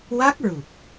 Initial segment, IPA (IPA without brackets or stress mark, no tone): w